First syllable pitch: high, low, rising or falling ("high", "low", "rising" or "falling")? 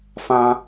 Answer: high